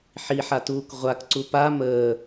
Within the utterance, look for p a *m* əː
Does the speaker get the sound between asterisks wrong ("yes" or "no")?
no